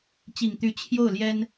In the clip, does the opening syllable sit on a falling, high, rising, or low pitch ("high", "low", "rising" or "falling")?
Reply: low